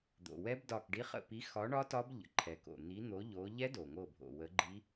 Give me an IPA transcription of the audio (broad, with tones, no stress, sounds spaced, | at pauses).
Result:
d̪ o̰˩ w ɛ˦˥ b d ɒ˧˩ k ɖ i˨˥ χ ə̰˧˩ p i˨˥ x ɒ˨˥ ɳ ɒ˦˥ t ɒ˦˥ b ʎ ə̰˩ ǃʰ ɛ˩ k o̰˩ n̪ i˨˥ n̪ o˨˥ ʎ o˨˥ ʎ ɛ˦˥ d o˩ ŋ o˧˩ bʱ o̰˩ w ə˨˥ ɡ͡ǃ i˦˥